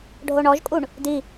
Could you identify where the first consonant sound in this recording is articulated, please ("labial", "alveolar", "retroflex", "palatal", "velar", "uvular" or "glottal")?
retroflex